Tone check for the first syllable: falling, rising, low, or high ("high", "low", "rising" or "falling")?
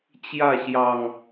falling